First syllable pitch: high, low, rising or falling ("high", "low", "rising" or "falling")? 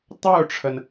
falling